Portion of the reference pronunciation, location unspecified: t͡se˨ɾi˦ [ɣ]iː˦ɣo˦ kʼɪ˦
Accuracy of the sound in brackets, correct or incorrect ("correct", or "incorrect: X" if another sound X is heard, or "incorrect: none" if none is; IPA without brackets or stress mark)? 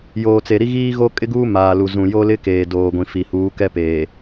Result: correct